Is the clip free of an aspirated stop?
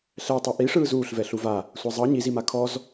no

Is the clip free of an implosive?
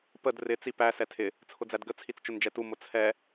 yes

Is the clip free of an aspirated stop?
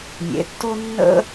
yes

